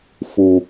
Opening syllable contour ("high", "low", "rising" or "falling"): low